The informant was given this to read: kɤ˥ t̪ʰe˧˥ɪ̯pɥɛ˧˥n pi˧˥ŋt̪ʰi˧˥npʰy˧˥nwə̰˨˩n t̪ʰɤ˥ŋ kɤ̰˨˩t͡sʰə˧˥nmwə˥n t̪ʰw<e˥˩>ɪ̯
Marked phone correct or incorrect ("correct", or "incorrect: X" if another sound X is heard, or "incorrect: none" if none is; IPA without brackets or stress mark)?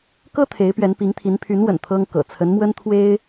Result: incorrect: e˥